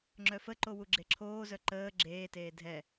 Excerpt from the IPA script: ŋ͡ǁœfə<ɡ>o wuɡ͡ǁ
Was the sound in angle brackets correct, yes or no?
no